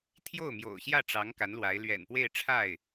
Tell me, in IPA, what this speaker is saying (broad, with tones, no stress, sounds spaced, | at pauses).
t̪ʰ j o˥˩ ʊ̯ m j o̰˨˩ ʊ̯ ɕ j ä˥˩ ʈ͡ʂ ɑ˧˥ ŋ k a˧˥ n l w a˧˥ ɪ̯ l ɥ ɛ̰˨˩ n p w e˥˧ ɪ̯ ʈ͡ʂʰ a˥˩ ɪ̯